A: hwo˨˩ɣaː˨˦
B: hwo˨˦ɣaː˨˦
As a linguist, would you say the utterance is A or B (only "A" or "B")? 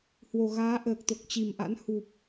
A